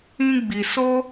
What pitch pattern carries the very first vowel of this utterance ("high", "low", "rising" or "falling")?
high